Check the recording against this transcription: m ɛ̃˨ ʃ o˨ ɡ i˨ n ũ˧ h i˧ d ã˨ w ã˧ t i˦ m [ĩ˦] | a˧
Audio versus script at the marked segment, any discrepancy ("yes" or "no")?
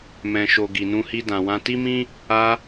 no